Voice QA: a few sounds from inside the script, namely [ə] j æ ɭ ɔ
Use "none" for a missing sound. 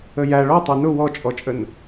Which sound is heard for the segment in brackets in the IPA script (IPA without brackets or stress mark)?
ə